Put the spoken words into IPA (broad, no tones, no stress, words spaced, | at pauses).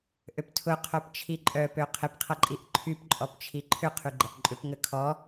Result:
ʔøptʰʊ qʰœpt͡ʃʰiǃʼœ pøqʰɪpqʰɐǃʼiʔ ǃʰyp ǃʼɔpt͡ʃʰiǃʰʏ qʰyɡ͡ǃɐʔǃʼʏp ŋəkʰɔ